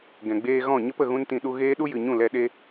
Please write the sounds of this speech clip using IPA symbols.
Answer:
ɡ ɛ̃˨ ɡ͡b eː˧ ɣ ɔ̃˦˨ ɲ ə˦ p ə˨ ɣ ũ˦ n t ĩ˧ ɗ u˧ ɣ eː˦ ɗ u˦ j ɨ˨ ɲ ũ˦˨ l ɛ˧ ɗ e˦

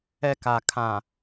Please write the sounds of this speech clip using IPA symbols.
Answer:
ɛ˨ k a˨ kʰ ã˨

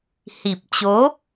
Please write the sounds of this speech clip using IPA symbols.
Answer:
h i˨˩ p̚ t͡ɕ o˨˦

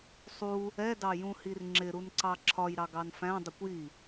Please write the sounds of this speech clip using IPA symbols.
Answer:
sˤ u | ɛ d ɑ j ũ h i r ŋ͡ǁ ɪ ɾ u n ǀ ɑ ǁʰ ɒ j ɾ ɑ ɡ ɑ n f æ̃ dˤ ə kʷ j i

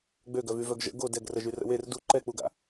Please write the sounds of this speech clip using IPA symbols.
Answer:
ɡ͡b ø ɡ œ v y v œ ɡ ʒ ə̰ ɡ o d ɛ ɡ r ə ʒ y r ə̰ w e r d u ǃ ɛ k͡p u ɡ a̰

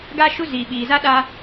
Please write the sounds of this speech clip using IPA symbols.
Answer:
ɡ a˦ ʃ u˦ z iː˨ ɓ iː˨ z a˦ ɗ a˦

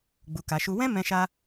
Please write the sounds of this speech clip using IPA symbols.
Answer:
ɡ͡b u˨ k a˨ ʃ u˧ w ɛ̃˦ m ɛ̃˧ ʃ a˧

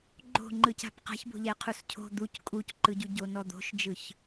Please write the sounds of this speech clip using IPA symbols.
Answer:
ɡ͡ǃ o̤ ŋ͡ǃ ɯ c a̤ p q a̤ ç b o̤ ʎ ɛ qʰ u s cʰ o̤ d̪ u c kʼ u c ǃ ɯ ɟ u ɟ o n ɔ d̪ o̤ ʃ d͡ʒ ɯ ç

